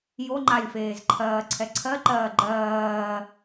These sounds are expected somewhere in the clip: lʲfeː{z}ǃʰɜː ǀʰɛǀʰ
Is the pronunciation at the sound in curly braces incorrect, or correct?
correct